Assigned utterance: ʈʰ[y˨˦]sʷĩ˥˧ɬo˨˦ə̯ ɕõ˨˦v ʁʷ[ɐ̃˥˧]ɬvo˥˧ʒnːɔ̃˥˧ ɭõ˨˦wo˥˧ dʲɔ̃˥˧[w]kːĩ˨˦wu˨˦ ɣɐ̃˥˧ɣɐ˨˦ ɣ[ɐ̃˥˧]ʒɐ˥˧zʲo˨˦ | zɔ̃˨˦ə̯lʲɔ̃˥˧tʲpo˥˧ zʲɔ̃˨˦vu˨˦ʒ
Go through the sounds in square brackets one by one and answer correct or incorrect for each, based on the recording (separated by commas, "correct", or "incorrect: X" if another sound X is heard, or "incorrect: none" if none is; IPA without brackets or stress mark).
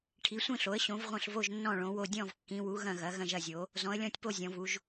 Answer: incorrect: i˨˦, correct, incorrect: v, correct